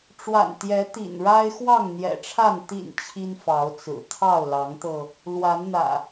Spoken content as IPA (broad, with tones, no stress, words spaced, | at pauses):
ʈ͡ʂwa̰˨˩nt̪jɛ˨˦ t̪ḭ˨˩nɻa˦ɪ̯ xwɑ˥˨ŋn̪jɛ̰˨˩ʈ͡ʂʰa˥˨n t̪ḭ˨˩n t͡ɕʰi˦nfɑ˨˦ʊ̯t͡sɹ̩˨˩ t̪ʰɑ˥˨ʊ̯lɑ˨˦ŋt̪ɤ˧ | lwa˨˦nn̪ä̰˨˩